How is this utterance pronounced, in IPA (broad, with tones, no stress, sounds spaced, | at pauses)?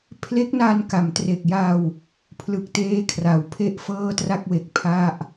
pʰ l e˦˥ k̚ n a˧ n k a˩˦ m t r e˨˩ k̚ j a˧ w | pʰ l ɯ˨˩ k̚ t eː˦˥ kʰ r a˩˦ w pʰ e˥˩ ʔ f ɤː˥˩ t r a˥˩ k̚ w e˨˩ k̚ pʰ a˥˩ ʔ